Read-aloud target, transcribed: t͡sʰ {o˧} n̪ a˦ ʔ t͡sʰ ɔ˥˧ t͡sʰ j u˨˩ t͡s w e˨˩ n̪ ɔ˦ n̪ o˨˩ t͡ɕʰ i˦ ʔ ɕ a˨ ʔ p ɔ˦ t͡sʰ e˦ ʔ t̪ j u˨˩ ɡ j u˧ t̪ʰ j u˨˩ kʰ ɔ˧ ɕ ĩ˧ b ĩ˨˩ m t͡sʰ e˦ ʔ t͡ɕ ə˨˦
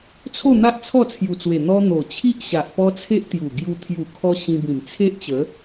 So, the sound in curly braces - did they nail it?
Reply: no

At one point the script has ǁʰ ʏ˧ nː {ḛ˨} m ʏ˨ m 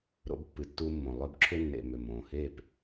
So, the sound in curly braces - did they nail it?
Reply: yes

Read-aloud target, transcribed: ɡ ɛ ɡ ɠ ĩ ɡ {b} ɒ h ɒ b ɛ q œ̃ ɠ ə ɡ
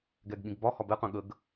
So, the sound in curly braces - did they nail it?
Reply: yes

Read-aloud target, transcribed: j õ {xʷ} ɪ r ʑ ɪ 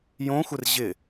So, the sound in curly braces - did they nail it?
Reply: yes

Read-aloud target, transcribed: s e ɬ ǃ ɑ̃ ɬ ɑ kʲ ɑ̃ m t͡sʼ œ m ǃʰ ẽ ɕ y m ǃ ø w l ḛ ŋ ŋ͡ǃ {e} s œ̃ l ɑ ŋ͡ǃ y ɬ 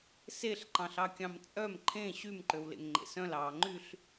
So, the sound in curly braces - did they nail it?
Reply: no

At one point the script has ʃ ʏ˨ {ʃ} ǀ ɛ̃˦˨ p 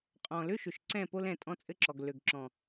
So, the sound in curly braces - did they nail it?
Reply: yes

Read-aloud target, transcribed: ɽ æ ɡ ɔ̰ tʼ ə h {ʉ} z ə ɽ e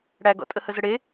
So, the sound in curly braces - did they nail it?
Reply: no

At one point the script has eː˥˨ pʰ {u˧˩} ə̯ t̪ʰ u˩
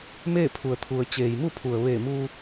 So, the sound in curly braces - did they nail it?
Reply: no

